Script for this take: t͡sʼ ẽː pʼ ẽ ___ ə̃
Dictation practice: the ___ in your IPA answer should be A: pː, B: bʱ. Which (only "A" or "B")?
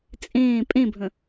B